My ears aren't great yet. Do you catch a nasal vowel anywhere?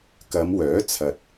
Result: no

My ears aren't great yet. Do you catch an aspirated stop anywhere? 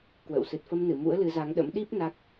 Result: no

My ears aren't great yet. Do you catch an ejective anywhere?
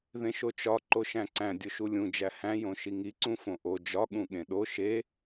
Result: no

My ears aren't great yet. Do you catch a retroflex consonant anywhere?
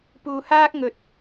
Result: no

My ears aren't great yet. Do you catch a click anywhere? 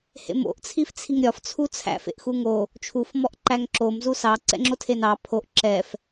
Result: yes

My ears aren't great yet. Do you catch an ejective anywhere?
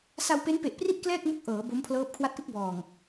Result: no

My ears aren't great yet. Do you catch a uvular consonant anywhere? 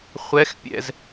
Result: yes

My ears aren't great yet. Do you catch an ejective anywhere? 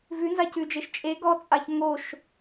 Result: yes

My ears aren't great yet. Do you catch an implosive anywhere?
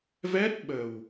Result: yes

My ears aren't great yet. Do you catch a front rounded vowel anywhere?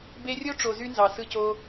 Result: yes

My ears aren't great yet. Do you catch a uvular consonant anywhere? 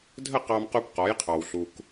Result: yes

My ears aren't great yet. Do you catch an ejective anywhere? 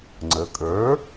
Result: yes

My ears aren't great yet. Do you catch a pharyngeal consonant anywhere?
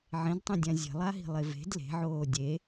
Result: yes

